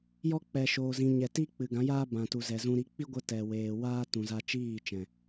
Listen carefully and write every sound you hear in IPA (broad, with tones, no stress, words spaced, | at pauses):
jɔ˧ k͡pɛ˨ʃoː˨zĩ˨ ɲɛ˨ ti˦ k͡pɨ˨ɡã˨˦jaː˦ bã˨tu˨zɛ˨zũ˧ ɾi˨˦ k͡pi˦ɡʷə˧ tɛ˨weː˨waː˦ tũ˨za˧t͡ʃiː˦˨t͡ʃɛ̃˨